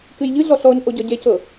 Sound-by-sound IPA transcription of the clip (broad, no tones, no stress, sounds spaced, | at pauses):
k ɨ j ʎ ɨ ɮ ɔ ɬ ɔ ɲ ʔ o ɟ ʌ ɟ e c ɤ